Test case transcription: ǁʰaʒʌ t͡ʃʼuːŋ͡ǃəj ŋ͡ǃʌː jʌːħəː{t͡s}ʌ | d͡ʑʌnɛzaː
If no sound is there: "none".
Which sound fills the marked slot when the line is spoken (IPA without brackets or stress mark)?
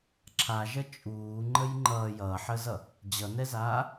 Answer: z